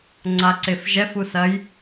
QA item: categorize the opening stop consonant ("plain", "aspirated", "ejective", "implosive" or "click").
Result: click